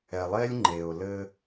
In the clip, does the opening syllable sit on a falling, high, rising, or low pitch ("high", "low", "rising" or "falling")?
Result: low